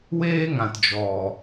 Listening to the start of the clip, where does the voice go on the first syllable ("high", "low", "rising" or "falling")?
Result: high